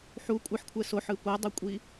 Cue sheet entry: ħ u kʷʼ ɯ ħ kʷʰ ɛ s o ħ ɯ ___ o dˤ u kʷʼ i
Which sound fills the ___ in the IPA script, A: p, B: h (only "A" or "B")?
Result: A